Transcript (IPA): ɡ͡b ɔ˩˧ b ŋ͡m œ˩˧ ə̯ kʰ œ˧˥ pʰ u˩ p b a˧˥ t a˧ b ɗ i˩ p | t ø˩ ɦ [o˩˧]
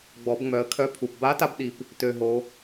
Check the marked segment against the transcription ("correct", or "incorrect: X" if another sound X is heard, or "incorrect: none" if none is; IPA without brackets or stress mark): correct